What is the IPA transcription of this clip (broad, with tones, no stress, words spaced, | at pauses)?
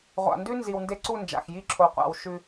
ʁʷa̰˨ndʉ˦ nzi˨wnde˦ǀu˦˨ nd͡ʒa̰˨xji˦˨ ǁʰo˨qʷa̰˨w ʃʉ˦